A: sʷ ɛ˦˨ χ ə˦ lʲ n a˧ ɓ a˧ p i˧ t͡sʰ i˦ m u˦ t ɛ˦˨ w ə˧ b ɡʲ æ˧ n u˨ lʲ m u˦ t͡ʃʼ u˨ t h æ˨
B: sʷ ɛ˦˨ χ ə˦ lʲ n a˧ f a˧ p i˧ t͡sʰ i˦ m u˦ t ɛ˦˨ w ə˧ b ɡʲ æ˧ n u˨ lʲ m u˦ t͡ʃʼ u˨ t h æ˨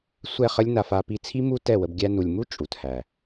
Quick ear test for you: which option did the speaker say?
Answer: B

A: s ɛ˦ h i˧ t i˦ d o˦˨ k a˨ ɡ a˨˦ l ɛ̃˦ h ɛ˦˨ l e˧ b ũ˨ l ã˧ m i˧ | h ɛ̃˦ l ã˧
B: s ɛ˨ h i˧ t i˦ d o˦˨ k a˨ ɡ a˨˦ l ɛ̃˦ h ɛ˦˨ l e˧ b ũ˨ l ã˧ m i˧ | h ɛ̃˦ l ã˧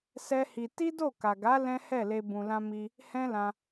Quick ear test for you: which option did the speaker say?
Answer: A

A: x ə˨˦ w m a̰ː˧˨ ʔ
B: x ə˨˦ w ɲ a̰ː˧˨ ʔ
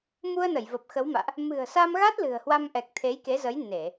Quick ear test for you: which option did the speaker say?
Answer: A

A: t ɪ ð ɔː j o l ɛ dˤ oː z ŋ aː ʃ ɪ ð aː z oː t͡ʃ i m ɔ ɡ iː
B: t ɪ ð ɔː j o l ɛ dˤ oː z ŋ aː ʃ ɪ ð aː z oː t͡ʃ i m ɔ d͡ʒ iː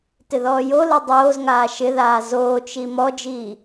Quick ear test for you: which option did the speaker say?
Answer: B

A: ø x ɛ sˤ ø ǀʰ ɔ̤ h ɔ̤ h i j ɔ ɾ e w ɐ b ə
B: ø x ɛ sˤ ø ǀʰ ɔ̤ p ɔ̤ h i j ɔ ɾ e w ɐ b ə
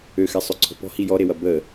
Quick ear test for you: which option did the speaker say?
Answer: B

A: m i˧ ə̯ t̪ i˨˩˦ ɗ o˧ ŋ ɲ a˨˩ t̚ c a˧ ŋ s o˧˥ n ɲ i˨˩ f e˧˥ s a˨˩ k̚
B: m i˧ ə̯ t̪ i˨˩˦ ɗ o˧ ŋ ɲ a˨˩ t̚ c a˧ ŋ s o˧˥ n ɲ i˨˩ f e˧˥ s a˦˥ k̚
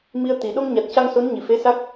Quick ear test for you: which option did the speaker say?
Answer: B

